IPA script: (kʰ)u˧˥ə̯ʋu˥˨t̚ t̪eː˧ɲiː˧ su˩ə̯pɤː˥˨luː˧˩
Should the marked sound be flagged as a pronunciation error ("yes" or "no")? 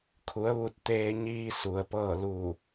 no